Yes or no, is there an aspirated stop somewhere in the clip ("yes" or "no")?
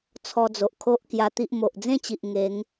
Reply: yes